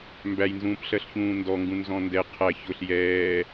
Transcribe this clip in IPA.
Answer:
m b æ j n z ũː p ɬ ɜ ɬ ç ũː n d ɔ ŋ ɡ ũ n z ɔ̃ n d ɛ qʰ æ ç ʊ ɬ j ɛː

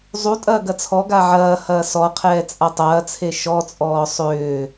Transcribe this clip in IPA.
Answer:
zˤ u tʼ ɐː ɡ ɐ t͡sʰ ɔ ɡ a ʕ ɐː h ɐː s ɔ qʰ ɛː t͡sʼ a tˤ ɐː t͡sʰ e ʃ ɔ t͡sʼ ɔː sˤ ʏː

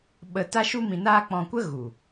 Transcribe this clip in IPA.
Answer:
ɓ ə˧ t a˦ ʃ u˦ m ĩ˧ n aː˦ k͡p ɔ̃˧ kʷ ə˦ ɣ u˨

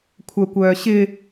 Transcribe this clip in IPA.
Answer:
kʷʰ œ kʷ œː ɕ ɪ

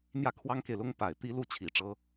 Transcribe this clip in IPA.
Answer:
n̪ j ä˥˩ kʰ w ɑ˥ ŋ k e˨ ɪ̯ l ʊ˥ ŋ p a˨˩ ɪ̯ t̪ i˥ l u˥˩ t͡ɕʰ i˨˩ ʈ͡ʂ ɤ˥

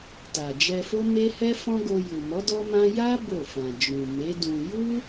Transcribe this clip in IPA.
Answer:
t a˨ d͡ʒ ɛ˧ f o˦ m e˦ h ɛ˦ f ɔ̃˦ ɡ o˧ j u˨ m ɔ˨˦ d ɔ˦ m ã˦ j a˦ b o˦˨ f ã˨ d͡ʒ ũ˨ m e˨˦ d ũ˧ j u˦

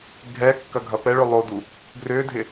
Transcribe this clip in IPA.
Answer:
ɡʱ ɛ kː ɐ ɡʱ ɐ p ɛ ɭ ʏ lˠ o d u | ɡ r ʏ dʱ ɪ

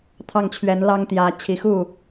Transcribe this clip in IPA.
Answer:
t̪ʰ ɑ˥˩ ŋ t͡ɕʰ ɥ ɛ˧˥ n l ɑ˥ ŋ t̪ j ä˧˥ t͡ɕʰ i˨˩ x u˥˩

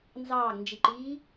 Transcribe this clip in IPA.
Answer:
n z ɑː ɡ n d͡ʒ i ǃ iː

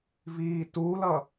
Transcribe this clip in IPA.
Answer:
v iː t u l ʌ

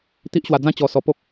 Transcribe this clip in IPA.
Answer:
t̪ i˦ ʔ ɕ w a˧ d͡z ã˦ t͡ɕ ɔ˧ s ɔ˧ p o˦ k̚

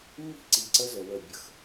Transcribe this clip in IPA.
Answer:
mː i̤˦ ǀ i˨ ǀ ə˦ z ə˨ w ə˨ bʲ ə˨ x

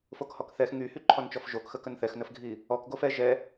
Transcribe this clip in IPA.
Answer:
f o k h ɔ k θ ɛ x ŋ y h y ǃʰ ɔ n t͡ʃ ɔ f ʒ o k x ə k ə n θ ɛ x n ə f ɡʱ i | ɔ k ɡ o f ɛ ʒ ɛ

